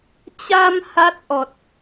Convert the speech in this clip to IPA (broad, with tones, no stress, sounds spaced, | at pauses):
t͡ɕ a˧ m h a˦˥ t̚ ʔ ɔ˨˩ t̚